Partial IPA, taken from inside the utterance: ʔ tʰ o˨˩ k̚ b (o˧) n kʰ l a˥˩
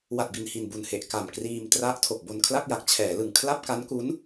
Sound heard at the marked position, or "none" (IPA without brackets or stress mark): o˧